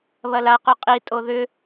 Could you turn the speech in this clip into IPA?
β ɐ l a q y qʼ i tʼ o ð ʏ

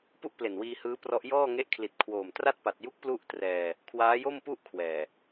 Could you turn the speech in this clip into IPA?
p u˥˩ ʔ p l e˨˩ n w iː˧ h ɯː˦˥ p r ɔ˦˥ ʔ j ɔː˥˩ ŋ e˦˥ ʔ kʰ l i˨˩ t̚ kʰ w oː˨˩ m t r a˥˩ t̚ p a˨˩ t̚ j u˦˥ k̚ p l u˥˩ ʔ t r ɛː˧ | kʰ w aː˦˥ j o˥˩ m p u˥˩ ʔ kʰ w ɛː˨˩

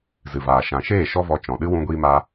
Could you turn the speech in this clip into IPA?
z ɨ˨ v aː˨ ʃ ã˨ ʃ eː˦˨ ʃ ɔ˦ v ɔ˧ t͡ʃ ɔ̃˨ ɗ ɨ˦ w ũ˦ ɡʷ iː˦ m a˦

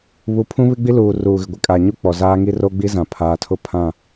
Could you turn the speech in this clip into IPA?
β u˨˦ pʰ ũ˦ β ɪ˦ ɡ͡b i˦ l uː˨ r uː˨ ɣ ɪ˨ ɡʷ ɪ˨ kʼ a˨ ɲ u˦ k͡p ɔ˨ z aː˦ ŋ i˦ r o˦ ɡ͡b i˦ z ã˨ pʰ aː˨ tʰ ʊ˦ pʰ ã˦˨

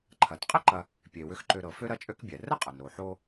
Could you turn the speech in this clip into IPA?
ǃʰ ɐ˩ t qʼ ə˥ ǃ ɐ˨ | pʲ e˩ w ʏ˨ x ǃ ø˨ ɾ ɤ˩ f ø˥ ɾ ɐ˥ t͡ʃʼ ø˥ k bʲ ɛ˩ r ə˥ qʼ ə˩ n ɾ o˩ ħ o˦

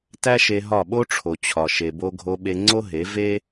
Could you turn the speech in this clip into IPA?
t æ˦ ʃ e˧ ɦ ɒ˦˨ ɓ o˦ ʈ͡ʂʰ o˨ t͡ɕʰ ɒ˨ ʃ e˨ b o˧ ɡʱ o˧ ɓ e˧ ŋ͡ǀ o˦ ɦ e˨˦ v e˦

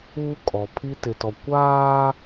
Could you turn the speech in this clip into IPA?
uː˦ kʼ ɔ˨ pʰ i˦ t ɪ˨ t ɔ˨ kʷ aː˦

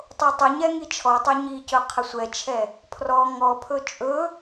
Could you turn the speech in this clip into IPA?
tˤ o tˤ ə ɲ ɛ ŋ i t͡ʃʰ ɔ tˤ ɵ ɲ i c ɵ qʰ ə sʷ ɛ t͡ʃʰ ɛ | pʰ r ɔ ŋ ɔ pʰ ɵ t͡ʃʼ ɵ

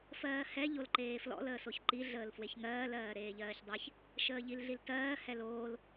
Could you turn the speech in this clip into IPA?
f ɜː h ɛ ʎ o l ǃ eː f l ɔ̰ l əː s o ç ǃ i ɮ əː l f w e ç ŋ ɜː l ɜː ɾ eː ʎ ɜː ç dˤ e ç | ʃ əː ʎ i l ɮ i l t ɜː h ɛ l oː l

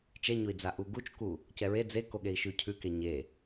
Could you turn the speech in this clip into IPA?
t͡ʃ ɛ ɲ o i̯ d͡z a ʔ u ɡ u t͡ʃ k u | c ɛ ɹ e d͡z e k o ɠ e i̯ ʃ ʉ cʰ ʉ k e ɲ e

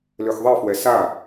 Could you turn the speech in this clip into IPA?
l ø x ðˤ e f w ɛ s a

